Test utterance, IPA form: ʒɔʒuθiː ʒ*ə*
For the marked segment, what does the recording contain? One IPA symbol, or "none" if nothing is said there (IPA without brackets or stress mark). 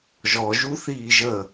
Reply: ə